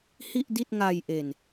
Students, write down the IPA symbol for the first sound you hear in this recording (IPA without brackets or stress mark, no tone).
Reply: h